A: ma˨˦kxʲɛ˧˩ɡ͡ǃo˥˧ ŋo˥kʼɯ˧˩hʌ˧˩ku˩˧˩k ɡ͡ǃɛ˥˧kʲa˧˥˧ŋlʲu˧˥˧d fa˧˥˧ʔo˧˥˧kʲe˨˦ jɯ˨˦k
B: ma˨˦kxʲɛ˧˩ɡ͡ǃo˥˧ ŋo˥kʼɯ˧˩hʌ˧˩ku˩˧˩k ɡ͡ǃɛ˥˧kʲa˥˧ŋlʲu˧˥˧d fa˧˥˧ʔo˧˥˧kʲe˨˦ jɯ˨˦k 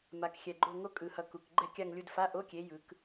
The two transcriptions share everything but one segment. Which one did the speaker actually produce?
B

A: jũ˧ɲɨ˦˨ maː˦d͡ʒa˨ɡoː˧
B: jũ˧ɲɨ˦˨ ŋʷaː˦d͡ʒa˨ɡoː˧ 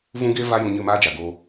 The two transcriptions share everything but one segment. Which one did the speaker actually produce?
A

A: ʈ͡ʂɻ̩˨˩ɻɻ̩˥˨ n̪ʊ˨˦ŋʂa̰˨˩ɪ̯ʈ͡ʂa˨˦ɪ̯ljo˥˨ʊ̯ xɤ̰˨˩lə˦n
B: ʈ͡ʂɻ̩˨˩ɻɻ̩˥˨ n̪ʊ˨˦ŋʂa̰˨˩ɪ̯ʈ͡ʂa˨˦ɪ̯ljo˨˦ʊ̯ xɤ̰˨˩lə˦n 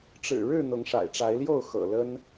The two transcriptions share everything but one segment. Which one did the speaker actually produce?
A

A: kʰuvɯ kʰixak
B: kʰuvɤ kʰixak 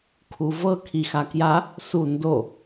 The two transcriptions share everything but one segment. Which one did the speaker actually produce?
B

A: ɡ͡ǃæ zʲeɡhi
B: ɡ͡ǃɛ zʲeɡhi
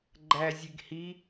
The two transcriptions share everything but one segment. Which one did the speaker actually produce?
A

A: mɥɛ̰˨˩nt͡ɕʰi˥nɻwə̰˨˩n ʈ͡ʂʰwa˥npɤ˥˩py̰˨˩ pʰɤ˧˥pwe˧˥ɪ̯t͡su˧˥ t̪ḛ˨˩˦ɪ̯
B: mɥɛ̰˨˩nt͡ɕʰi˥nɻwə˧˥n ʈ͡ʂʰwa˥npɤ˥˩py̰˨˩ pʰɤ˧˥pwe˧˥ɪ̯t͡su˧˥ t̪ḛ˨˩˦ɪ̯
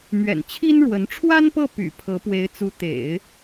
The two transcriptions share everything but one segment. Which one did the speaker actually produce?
B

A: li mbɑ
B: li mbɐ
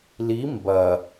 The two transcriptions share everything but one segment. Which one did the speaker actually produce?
B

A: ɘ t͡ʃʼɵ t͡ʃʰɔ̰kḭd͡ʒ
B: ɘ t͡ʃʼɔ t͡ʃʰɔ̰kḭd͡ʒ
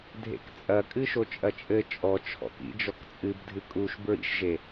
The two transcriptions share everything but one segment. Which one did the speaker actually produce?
B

